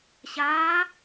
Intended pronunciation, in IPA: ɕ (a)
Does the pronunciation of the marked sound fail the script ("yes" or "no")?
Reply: yes